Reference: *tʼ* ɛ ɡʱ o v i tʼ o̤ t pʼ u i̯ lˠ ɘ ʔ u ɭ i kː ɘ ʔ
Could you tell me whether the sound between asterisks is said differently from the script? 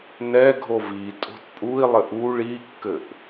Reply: yes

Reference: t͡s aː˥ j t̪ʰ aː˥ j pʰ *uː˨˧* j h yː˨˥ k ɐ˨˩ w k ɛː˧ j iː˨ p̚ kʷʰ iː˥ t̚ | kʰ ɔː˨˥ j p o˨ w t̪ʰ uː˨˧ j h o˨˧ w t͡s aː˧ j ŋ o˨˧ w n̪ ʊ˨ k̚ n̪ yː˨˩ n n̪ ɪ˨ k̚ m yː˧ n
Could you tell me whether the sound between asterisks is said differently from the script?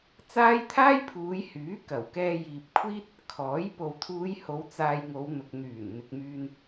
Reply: no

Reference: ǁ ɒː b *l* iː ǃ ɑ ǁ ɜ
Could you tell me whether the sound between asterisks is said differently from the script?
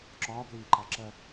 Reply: no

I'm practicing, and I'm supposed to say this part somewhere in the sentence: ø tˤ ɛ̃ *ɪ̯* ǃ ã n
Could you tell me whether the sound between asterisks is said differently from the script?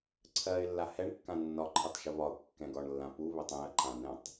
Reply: yes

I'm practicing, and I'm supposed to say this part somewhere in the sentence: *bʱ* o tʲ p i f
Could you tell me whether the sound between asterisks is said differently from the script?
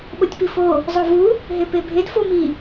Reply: yes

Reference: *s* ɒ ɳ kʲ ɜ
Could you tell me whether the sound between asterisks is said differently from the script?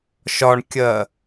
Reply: yes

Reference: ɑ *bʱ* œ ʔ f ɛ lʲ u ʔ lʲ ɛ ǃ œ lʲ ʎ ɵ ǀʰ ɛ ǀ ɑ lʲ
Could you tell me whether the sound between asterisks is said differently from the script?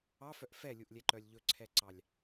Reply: yes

